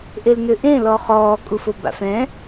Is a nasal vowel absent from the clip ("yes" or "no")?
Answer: no